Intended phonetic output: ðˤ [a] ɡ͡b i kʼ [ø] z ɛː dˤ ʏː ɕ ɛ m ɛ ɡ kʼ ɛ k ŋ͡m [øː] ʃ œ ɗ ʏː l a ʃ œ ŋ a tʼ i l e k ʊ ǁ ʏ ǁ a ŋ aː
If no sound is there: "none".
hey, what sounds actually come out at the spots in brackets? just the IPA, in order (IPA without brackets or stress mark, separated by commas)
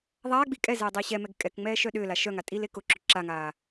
aː, ɛ, ɛː